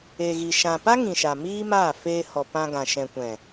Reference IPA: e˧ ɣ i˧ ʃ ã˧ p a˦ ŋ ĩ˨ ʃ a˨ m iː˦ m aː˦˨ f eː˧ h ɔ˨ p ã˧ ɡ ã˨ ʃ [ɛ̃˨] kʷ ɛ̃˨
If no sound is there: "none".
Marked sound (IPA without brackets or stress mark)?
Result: ɛ̃˨